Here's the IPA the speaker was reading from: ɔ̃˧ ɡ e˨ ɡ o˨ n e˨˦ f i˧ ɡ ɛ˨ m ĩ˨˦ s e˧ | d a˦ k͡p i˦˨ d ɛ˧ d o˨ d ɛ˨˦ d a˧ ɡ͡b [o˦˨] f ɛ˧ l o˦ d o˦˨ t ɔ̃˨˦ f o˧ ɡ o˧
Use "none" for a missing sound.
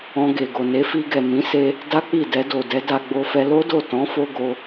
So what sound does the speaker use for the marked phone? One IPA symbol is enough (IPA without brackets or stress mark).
o˧